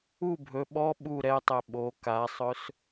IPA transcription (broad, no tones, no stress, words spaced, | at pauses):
u bʱɵ ɓɔ ɓu ɾɛtˤɛ ɓo kasˤɵs